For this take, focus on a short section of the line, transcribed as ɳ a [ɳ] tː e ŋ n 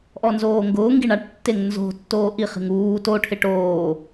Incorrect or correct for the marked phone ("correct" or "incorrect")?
incorrect